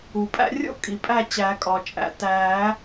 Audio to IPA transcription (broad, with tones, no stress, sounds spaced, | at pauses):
u˩ pʼ æ̰˧ rʲ o̰˥˩ kʼ i˩ pʼ æ˥˩ t͡ɕ æ˨˩˦ kʼ ɒ˩ t͡ʃʼ æ̰˩ t æ˨˩˦